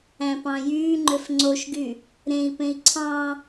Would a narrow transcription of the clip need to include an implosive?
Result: no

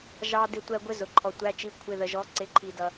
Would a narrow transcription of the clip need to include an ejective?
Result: no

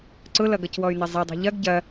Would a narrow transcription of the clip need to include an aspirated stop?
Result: no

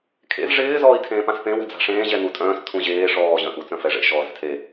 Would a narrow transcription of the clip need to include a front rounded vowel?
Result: yes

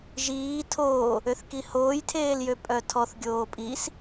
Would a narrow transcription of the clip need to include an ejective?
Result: yes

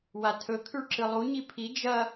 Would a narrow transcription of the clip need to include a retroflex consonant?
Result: yes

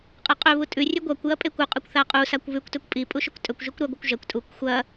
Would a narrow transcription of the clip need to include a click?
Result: no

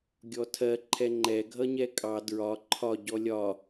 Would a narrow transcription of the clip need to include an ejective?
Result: yes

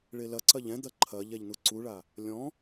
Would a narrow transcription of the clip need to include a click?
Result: yes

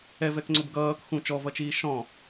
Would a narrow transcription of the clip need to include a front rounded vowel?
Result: no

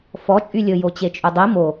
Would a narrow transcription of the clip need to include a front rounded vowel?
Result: yes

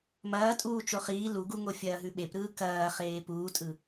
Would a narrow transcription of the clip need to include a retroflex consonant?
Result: no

